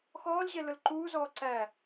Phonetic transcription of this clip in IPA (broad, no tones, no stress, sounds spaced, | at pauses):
x ɔː l ʑ ɛ l ʊ l ǃ uː z ɔː ǀ æ